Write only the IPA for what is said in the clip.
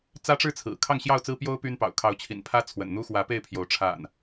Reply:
t͡s ä˦ ʈ͡ʂ ɻ̩˥˨ t͡sʰ ɹ̩˨˩ kʰ ɑ˥˨ ŋ ɕ j ɑ˥˨ ʊ̯ t͡s ɹ̩˦ p j o˦ ʊ̯ p y˦ n p ɑ̰˨˩ ʊ̯ kʰ ɑ˨˦ ʊ̯ t͡ɕʰ ḭ˨˩ n pʰ ä˦ t͡sʰ w ə̰˨˩ n n̪ u˦ x w ä˨˦ p e˥˨ ɪ̯ pʰ j o˨˦ ʊ̯ ʈ͡ʂʰ a̰˨˩ n

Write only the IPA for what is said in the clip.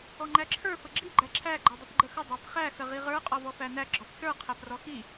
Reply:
ɔ ŋ͡ǃ æ ǁʰ ə˞ f ə ɡ͡ǁ i ɡ͡ǃ æ ǁʰ æ ɡ͡ǃ ɔ dˤ ə p ɡ͡ǃ ə x ə dˤ æ p χ æ x ə ʁ i ʁ ə˞ qʼ ɔ v ɔ f æ n æ ɡ͡ǁ ɔ p s ə˞ qʰ æ p r ɔ x i

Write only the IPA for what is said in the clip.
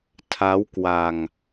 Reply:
tʰ a˦˥ w k w a˧ ŋ

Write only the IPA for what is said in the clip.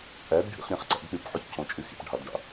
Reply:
ʔ æ d ɖʱ ḭ χ ɾʲ æ̃ χ ǀ æ̰ d k͡p y p ħ u ç cʰ õ t͡ʃʼ y x ḭ p ɖʱ ɑ d ɖ ɑ̰

